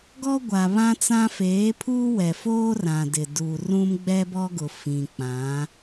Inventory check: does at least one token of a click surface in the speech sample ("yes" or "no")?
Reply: no